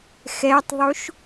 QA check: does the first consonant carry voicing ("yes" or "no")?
no